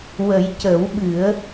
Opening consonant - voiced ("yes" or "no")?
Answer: yes